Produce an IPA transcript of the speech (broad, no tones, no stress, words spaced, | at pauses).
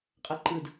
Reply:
qʼʌǃɯd